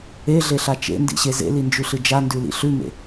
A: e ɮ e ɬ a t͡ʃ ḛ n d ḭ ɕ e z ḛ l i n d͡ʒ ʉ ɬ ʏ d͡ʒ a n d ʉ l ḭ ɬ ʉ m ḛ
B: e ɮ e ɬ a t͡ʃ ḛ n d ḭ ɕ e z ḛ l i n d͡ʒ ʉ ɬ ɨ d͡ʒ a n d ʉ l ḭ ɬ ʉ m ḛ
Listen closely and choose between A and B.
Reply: B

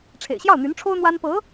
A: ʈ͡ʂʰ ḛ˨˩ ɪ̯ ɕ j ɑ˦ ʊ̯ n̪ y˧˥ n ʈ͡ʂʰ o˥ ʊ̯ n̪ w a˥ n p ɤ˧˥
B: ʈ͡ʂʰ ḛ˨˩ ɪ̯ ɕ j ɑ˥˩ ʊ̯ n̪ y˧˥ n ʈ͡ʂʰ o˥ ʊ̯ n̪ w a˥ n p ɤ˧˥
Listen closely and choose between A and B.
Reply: B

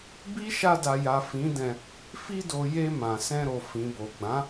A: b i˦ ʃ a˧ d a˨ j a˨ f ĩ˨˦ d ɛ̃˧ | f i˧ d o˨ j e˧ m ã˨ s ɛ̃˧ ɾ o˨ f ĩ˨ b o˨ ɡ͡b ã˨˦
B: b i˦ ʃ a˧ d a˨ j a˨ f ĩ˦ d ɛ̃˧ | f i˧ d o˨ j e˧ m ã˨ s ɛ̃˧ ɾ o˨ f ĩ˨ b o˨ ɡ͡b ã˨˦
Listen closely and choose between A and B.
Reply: A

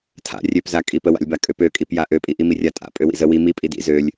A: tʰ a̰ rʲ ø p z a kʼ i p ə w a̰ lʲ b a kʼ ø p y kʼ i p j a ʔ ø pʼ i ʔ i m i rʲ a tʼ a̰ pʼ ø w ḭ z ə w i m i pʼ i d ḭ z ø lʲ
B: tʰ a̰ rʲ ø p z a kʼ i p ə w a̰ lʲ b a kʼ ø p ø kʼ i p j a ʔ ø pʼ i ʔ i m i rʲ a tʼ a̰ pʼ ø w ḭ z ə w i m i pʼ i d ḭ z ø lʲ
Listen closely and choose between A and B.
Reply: B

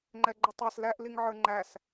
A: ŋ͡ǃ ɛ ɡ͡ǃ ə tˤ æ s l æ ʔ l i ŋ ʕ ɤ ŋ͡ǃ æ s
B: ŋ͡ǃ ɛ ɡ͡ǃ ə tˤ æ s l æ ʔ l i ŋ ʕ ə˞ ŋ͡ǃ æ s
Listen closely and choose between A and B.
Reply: B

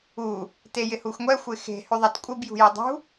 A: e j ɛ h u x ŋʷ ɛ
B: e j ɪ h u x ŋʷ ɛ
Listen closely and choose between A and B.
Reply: B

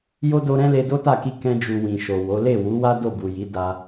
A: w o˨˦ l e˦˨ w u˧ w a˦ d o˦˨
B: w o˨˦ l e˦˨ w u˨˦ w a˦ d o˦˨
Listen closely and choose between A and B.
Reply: B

